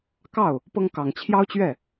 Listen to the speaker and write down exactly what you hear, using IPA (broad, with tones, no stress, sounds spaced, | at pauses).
k ɑ˥˩ ʊ̯ | p ɤ˥ ŋ k ɑ˨˩ ŋ t͡ɕʰ j ɑ˥ ʊ̯ t͡ɕ ɥ ɛ˥˩